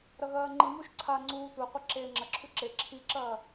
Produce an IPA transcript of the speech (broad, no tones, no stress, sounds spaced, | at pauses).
ɾ ɐ ɣ ɐː ŋ͡ǃ i m u ʃ ǀʰ a ŋ͡ǀ uː tʷ e qʷ ɐ ǁ eː ŋ͡ǁ ɐ ǁʰ ʉ ǁ e ǁʰ i ǁ ɐː